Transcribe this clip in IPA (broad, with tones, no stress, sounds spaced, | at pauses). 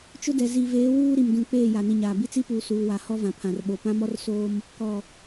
t͡ʃ ʊ˦ d ɛ˨ z i˨ v eː˨˦ w uː˦ ɾ i˨ m d ũ˨ k͡p eː˦˨ j a˨ n i˨ ɲ aː˨ b i˦ t͡s i˦ p uː˨ s uː˨ w a˨ h ɔ˦ v ã˨ pʰ ã˨ r ɓ o˨ p ã˦ m ɔ˦ r s oː˦ m | k ɔ˨